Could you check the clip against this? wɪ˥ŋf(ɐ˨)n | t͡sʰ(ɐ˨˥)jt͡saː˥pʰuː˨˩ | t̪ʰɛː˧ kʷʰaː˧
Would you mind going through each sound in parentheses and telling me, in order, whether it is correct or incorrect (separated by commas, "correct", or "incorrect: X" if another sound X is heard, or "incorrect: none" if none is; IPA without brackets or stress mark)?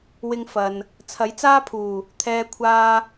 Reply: correct, correct